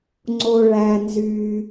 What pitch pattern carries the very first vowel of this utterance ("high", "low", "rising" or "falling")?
low